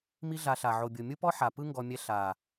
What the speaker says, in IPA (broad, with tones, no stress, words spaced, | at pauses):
mi˦ɮa˧ɬa˨ ʕo˨ bʲo˨mʲu˦pɔ˦ ħa˨pɯ˦ŋɡɔ˧mʲɛ˧ ɬa˨